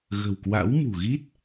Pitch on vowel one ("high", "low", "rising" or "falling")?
low